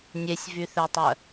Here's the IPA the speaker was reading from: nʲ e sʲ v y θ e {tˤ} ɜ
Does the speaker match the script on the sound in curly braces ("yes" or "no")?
yes